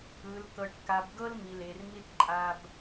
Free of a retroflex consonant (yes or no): no